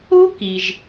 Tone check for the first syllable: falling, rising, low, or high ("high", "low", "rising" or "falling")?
high